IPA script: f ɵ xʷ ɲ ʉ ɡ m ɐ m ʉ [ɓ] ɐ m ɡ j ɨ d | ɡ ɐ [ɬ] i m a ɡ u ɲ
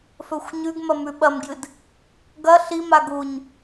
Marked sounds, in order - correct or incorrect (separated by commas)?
correct, correct